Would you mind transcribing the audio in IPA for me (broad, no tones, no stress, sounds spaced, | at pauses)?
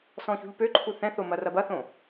s ɔ̃ ç ṳ ʎ p ø ǃʰ u θ ɛ̃ θ o m ɐ r ɐ b ɐ θ õ